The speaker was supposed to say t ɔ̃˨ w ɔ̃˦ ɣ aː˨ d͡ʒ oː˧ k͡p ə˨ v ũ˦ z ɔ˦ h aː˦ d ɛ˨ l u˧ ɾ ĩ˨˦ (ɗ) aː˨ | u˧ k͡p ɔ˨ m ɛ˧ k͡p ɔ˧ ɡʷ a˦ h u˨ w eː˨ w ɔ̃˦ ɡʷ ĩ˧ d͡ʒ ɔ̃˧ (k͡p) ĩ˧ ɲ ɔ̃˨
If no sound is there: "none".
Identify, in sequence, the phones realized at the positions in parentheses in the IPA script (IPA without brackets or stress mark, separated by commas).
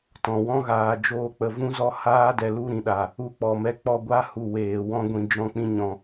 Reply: ɗ, k͡p